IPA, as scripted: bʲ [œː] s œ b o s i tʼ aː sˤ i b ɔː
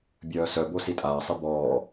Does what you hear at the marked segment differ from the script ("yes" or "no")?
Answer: no